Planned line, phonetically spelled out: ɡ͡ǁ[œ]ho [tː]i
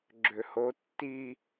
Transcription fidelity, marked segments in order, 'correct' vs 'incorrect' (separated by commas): incorrect, correct